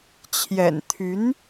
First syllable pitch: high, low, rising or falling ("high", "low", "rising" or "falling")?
low